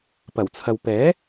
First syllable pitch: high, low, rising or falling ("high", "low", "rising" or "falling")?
low